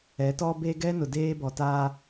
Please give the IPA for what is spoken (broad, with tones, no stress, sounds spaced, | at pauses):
ɛ˨˦ t ɔ˦ b e˦ ɡ ɛ˦ n ʊ˨ d eː˦ b ɔ˨ t aː˦